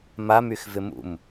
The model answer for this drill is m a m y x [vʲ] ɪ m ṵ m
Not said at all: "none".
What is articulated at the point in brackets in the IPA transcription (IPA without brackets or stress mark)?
v